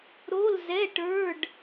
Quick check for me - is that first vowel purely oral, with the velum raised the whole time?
yes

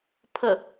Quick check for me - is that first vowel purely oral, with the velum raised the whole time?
yes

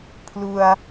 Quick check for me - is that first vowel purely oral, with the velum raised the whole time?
yes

